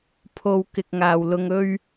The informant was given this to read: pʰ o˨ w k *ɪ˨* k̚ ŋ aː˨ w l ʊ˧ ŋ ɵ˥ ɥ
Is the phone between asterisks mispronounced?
no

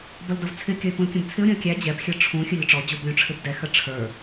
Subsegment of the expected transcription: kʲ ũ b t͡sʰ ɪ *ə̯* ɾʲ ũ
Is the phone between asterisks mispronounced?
yes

